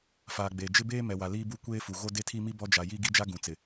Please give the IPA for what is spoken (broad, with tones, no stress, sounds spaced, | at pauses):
f aː˨ ɡ͡b eː˨ d͡ʒ ɪ˦ b eː˦ m ɛ˨ w a˨ l iː˦ b u˦ kʷ eː˦ f u˨ ɣ o˦ d e˦ tʰ i˦ m i˦ b ɔ˦ d͡ʒ a˨ j i˦ ɡ i˦ d͡ʒ a˦ ɡ ũ˨ t͡s ɪ˨